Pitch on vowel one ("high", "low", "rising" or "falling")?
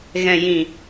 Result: low